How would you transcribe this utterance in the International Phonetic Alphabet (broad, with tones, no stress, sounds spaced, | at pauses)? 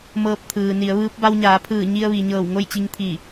m ɤː˧ p̚ t̪ʰ ɯː˩ n i˩˧ ə̯ ʋ ɯː˧˥ p̚ b a˧ w ɲ aː˩˧ pʰ ɯː˧˩ ɲ i˧ ə̯ ʋ i˩ ɲ ɤː˧˩ w ŋ o˥˨ j t͡ɕ i˧ ŋ t̪ʰ i˧˩